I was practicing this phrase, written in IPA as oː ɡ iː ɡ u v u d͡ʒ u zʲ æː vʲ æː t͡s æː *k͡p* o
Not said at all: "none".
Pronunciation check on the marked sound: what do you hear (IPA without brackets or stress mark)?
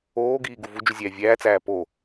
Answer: p